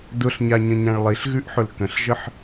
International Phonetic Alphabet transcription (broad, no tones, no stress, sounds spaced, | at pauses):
d ʊ ɬ ɲ a ɲ ə̃ ɲ ã ɭ lˠ i ɬ ɣ ʉ ʔ ħ ʊ l k ə̃ ɬ ʒ ə ħ